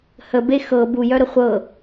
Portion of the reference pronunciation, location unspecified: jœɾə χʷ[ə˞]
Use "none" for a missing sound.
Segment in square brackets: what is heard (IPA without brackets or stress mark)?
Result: ɤ